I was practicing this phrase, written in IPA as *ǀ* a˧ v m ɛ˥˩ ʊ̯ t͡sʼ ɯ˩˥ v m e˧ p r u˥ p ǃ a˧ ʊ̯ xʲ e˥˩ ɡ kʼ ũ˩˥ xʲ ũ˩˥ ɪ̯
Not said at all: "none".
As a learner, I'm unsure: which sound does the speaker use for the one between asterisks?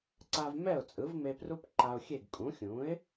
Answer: ǀ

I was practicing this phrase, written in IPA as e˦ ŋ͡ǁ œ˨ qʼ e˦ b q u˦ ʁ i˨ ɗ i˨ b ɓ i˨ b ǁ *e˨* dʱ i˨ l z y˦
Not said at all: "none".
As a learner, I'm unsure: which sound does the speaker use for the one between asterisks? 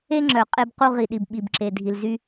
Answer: e˨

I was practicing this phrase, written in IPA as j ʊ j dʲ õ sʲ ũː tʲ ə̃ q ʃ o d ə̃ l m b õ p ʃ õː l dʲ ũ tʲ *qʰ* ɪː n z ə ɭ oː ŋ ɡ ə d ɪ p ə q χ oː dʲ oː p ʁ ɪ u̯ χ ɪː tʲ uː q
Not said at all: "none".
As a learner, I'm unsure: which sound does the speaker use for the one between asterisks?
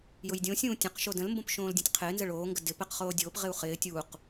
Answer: qʰ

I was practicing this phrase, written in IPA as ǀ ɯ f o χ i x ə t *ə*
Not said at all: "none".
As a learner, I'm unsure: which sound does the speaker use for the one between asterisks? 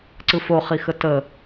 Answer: ə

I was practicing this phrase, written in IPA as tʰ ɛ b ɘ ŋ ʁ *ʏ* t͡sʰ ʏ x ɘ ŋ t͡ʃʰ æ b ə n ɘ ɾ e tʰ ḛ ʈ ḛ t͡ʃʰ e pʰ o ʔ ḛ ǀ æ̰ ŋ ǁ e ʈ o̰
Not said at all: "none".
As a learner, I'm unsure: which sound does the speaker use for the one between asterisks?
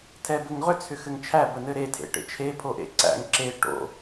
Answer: ʏ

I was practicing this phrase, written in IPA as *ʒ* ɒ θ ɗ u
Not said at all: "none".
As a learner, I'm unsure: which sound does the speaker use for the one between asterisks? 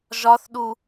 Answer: ʒ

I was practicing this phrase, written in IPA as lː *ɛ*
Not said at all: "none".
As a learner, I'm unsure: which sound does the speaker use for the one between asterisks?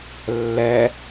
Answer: ɛ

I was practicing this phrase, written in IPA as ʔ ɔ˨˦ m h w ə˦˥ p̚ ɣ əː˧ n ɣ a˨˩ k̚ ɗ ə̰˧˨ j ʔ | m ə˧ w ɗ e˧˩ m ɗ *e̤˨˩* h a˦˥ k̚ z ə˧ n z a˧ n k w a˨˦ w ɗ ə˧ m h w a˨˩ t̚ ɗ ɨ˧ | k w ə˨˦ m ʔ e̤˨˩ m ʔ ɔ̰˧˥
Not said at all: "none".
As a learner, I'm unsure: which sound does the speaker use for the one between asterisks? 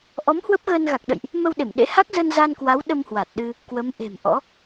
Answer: ḛ˧˥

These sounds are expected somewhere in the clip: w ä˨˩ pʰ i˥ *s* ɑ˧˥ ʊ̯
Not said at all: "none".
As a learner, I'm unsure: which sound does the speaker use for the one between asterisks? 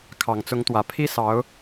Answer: s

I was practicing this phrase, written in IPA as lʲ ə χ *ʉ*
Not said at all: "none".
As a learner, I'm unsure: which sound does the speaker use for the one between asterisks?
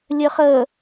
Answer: ə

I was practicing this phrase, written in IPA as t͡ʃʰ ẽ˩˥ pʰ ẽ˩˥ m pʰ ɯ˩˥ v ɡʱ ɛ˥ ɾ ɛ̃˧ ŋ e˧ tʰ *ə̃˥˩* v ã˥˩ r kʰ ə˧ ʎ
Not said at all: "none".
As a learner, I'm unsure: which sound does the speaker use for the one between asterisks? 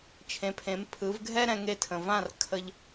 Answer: ə̃˩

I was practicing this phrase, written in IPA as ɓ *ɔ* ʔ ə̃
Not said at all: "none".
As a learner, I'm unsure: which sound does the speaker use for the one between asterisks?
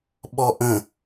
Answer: ɔ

